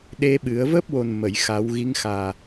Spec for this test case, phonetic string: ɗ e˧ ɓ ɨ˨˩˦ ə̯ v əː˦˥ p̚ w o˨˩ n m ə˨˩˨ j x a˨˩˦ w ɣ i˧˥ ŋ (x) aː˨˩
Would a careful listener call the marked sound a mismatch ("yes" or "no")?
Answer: no